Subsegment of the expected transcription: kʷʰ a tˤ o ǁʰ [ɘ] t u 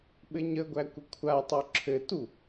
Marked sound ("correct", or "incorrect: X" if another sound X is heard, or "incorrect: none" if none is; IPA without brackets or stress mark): correct